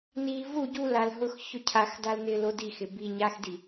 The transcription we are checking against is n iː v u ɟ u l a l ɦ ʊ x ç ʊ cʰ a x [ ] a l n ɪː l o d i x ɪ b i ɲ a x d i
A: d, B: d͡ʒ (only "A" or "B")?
A